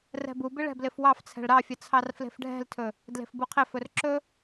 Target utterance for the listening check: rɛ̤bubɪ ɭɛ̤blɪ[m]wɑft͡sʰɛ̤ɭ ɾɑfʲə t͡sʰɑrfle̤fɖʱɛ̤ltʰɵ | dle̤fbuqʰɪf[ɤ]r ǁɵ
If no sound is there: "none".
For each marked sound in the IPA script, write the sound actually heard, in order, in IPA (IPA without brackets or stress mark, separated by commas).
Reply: f, ɵ